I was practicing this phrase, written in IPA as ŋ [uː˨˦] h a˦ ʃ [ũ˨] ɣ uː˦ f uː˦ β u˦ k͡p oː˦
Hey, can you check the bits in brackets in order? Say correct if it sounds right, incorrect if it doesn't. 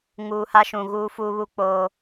incorrect: uː˨, correct

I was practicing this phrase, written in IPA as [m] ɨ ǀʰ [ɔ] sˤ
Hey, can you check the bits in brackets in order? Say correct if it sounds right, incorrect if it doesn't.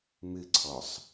correct, correct

